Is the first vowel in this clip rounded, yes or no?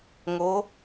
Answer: yes